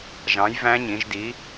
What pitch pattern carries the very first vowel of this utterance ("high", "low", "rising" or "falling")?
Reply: rising